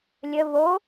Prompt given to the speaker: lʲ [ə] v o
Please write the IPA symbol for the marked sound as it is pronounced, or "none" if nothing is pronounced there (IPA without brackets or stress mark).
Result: ə